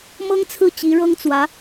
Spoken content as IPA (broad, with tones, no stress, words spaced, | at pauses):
mɤ˥ŋt͡sʰɹ̩˥˩ t͡ɕi˧˥ɻɤ˥ŋt͡swä˧˥